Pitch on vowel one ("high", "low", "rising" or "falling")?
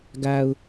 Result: low